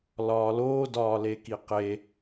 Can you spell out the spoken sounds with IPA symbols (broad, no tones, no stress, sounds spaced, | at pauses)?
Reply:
l ɒː l oː d ɒː l e k i q e